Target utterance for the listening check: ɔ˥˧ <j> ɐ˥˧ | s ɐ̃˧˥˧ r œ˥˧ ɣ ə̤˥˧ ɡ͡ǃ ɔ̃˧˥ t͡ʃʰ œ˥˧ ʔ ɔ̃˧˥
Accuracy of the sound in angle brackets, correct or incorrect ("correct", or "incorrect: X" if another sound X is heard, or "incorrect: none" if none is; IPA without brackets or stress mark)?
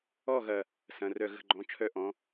incorrect: ɣ